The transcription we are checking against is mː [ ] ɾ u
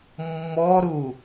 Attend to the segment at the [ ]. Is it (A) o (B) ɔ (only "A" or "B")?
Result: B